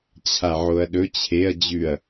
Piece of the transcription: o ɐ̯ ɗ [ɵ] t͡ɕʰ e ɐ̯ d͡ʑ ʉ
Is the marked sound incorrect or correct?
correct